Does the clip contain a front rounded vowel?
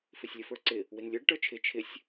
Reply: no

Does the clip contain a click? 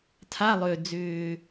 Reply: no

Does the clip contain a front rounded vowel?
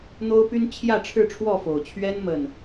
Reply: yes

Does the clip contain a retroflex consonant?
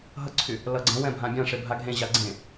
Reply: yes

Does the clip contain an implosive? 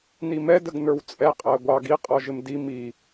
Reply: no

